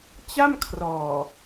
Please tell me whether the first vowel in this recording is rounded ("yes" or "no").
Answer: no